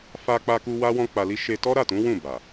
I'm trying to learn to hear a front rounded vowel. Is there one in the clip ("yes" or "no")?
no